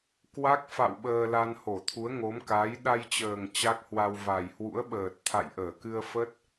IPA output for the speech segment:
kwa˦˥k̚fa̰˧˨w ɓəː˧la˧n ho˧˩t̪ʰu˨˦ə̯ŋo˨˦m ka˨˦j ɗa˧jt͡ɕəː˨˩ŋ t͡ɕa˦˥k̚hwa˧w va˨˩jhwṵ˧˥ə̯ɓəː˨˩t̚ t̪ʰa̰˧˨jʔəː˧˩kɨ˧ə̯fə˦˥t̚

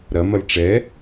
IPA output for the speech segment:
ɾɐ mɐlʈ͡ʂɛ

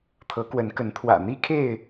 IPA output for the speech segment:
t̪ʰɤ˨˦kwə˨˦nkə˨˦n t̪ʰwä̰˨˩n̪i˦kʰe˥˨ɪ̯

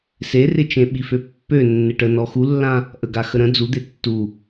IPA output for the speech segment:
serɪ t͡ʃẽɓiføpːø nːɪʈə nɔxulːã | ʔəɡa xəɾə̃ d͡zud̪e tːu

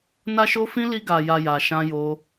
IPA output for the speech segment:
na˦ʃo˦fĩ˦ li˦ɡa˧ja˧ ja˧ʃã˦jo˦

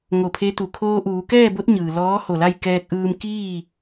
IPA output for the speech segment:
ŋo˧˩pʰe˧˥t̪u˩ kʰoː˧ʔuː˩˧kɛː˥˨bo˧˥t̚ ɲɯː˩lɔː˧˥ ho˧˩la˥˨j kɛː˧k̚ʔɯː˧mkiː˥˨

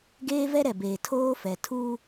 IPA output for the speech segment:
ɡeː˦vɛ˦ ɾɛ˨beː˨ tʰoː˦fɛ˨ tʰuː˦

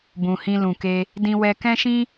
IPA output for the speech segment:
bũ˨hĩ˧lũ˨ke˧ | dĩ˧wɛ˧kɛ̃˦ʃĩ˦

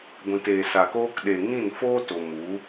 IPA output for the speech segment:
ɡʷĩ˨teː˨sa˨koː˧k ɗe˨ ŋĩ˦˨nfoː˦to˨mu˨˦

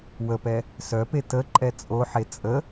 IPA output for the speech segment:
wəpɛ | sœpe tə ǃʼɛt͡sʼoħe t͡sʼə

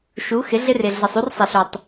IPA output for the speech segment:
ʃu˨˦xɪ˨˦ ɮɪ˦rɪ˨ ɮɪ˨sˤu˦rsˤe˨ɬ u˨tˤ

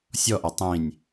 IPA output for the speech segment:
sʲɔʔa tˤĩnʲ

